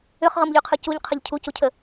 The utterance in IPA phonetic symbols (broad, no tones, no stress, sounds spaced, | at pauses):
ʏ χ ʁ ɤ m ʎ y qʰ ɯ c u ʎ qʰ ə ʎ cʰ u c u cʰ ə